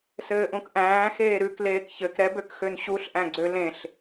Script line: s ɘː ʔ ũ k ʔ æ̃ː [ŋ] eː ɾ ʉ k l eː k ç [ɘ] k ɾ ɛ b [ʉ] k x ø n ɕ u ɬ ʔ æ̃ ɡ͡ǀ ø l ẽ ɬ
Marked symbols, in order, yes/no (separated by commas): no, yes, no